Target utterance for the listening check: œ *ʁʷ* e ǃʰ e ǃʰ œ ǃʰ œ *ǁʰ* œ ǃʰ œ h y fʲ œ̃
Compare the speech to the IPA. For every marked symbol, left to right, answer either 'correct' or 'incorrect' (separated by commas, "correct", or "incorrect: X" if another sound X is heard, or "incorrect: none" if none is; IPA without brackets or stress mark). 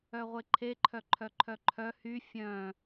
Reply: correct, incorrect: ǃʰ